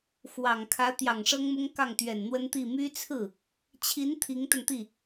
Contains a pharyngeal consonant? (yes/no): no